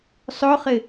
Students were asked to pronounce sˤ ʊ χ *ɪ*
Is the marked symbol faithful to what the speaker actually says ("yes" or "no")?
yes